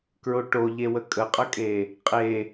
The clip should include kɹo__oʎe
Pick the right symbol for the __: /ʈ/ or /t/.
ʈ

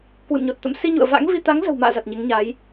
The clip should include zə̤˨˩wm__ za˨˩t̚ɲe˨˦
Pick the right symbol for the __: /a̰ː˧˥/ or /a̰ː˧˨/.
a̰ː˧˨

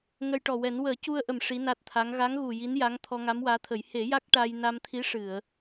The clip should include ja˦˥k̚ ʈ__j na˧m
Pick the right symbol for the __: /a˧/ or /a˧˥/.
a˧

